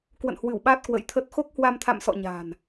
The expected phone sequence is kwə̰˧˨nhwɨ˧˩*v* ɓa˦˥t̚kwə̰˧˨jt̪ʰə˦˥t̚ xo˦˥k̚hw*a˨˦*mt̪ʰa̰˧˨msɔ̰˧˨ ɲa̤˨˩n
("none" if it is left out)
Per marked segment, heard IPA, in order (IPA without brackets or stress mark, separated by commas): w, a˧